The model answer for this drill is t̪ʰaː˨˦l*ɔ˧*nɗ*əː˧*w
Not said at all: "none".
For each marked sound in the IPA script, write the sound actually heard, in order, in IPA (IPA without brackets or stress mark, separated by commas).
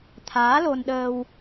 o˧, əː˧